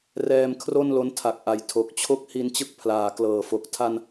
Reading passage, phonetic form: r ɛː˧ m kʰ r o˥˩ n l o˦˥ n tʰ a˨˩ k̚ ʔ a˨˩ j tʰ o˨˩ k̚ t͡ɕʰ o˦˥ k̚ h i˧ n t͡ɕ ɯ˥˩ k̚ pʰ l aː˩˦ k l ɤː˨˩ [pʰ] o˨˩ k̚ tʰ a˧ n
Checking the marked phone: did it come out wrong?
yes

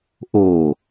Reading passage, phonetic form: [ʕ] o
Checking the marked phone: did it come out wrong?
yes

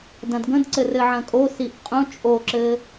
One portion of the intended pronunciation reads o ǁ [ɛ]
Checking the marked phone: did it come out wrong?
yes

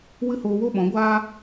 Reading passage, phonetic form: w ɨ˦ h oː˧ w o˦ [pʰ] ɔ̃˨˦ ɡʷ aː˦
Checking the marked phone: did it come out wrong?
yes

